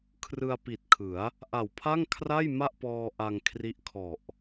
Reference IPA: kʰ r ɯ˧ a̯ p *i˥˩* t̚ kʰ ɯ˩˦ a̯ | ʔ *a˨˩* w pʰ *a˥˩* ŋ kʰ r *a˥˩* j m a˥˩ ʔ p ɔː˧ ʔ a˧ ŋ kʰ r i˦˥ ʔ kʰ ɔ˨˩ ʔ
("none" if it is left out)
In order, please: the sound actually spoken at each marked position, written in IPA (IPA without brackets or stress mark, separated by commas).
i˨˩, a˨˩, a˥˩, a˥˩